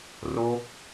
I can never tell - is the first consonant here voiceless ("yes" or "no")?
no